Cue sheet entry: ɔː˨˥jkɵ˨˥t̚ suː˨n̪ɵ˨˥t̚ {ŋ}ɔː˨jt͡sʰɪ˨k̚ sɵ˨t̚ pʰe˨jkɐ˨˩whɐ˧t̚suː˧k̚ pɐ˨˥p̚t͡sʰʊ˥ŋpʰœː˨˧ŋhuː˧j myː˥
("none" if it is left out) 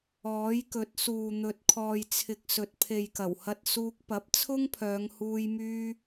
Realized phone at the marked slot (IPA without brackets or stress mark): kʰ